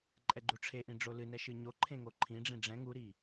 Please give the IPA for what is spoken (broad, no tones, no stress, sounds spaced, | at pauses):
ǃʼ ɛ ɡ͡ǃ u ʈ͡ʂʰ e ʔ ĩ ɖ͡ʐ o l ɨ n ɛ ʃ ɨ ɲ o ǃʰ ẽ ŋ o ǃʰ ĩ ɖ͡ʐ ĩ ɖ͡ʐ ɛ̃ ŋ u ɾ i